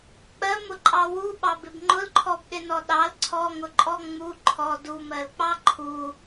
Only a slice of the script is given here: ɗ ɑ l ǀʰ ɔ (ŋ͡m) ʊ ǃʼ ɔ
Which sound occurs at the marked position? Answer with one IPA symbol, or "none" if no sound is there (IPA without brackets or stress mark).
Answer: ŋ